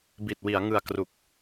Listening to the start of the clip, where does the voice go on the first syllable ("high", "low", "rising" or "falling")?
low